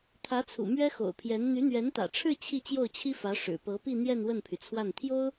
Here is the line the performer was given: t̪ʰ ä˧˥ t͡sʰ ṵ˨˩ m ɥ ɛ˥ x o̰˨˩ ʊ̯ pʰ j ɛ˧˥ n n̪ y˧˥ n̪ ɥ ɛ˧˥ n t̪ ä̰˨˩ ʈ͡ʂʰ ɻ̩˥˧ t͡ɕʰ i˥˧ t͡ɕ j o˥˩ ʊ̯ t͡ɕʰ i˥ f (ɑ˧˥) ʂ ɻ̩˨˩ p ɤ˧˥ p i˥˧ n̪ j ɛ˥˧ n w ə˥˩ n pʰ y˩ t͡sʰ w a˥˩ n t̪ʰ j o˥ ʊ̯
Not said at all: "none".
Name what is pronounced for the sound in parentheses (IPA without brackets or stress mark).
ä˧˥